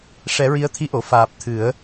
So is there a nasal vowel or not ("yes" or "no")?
no